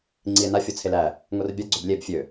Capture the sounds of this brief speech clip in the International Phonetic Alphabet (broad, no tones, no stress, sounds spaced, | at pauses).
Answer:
ŋ͡ǀ i e̯ n a fʲ o t͡sʰ e l æ | ŋ o r bʲ a ɡ͡ǀ ø b lʲ e b fʲ ø